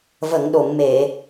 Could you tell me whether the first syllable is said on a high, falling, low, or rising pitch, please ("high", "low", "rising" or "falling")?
low